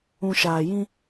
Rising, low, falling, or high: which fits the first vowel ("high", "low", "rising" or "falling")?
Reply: low